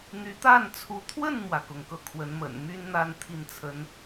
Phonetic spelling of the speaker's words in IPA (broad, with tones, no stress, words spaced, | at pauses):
n̪y˧˥t̪a˥˩nt͡sʰu˧˥ t̪ʰwə˥˩nmwä˩kʊ˩ŋ kɤ˥˩kʰwə˧˥n mə̰˨˩n my˥nn̪a˥˧n t̪ʰi˥˩nt͡sʰə˥n